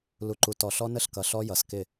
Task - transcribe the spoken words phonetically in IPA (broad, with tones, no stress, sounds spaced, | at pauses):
l u˨ ǃ u˨ t ɔ˨ ɬ ɔ˦ n ə˦˨ ɬ k ʌ˨ ɬ ɔ˦ j ʌ˨ s k ɪ˦˨